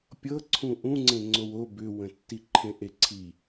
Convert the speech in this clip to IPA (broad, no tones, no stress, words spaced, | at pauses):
pʲɤ ǀʰũʔũŋ͡ǀẽ ŋ͡ǀowo bʏwə̃tːiǃʰẽ ʔeǀʰi